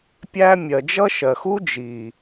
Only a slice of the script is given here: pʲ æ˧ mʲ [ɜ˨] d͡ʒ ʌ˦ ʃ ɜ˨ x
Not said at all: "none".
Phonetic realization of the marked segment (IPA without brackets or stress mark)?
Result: ɜ˨